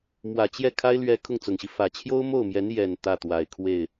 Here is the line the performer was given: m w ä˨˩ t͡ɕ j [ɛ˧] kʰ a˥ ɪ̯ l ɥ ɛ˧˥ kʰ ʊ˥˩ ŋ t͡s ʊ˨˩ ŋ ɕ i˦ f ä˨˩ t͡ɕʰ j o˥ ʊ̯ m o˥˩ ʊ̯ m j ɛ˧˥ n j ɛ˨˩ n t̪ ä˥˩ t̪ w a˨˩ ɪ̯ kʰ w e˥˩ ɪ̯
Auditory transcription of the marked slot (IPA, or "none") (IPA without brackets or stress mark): ɛ˥˩